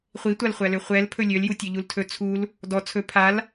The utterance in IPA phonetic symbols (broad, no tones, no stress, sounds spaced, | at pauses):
χʷ i tʷ a l χʷ æ l ø χʷ ɛ l pʰ ɵ lʲ ø l j u tʲ ø ʎ u l tʰ ɵ t͡sʰ u l | d ɔ t͡sʰ ɵ pʰ a l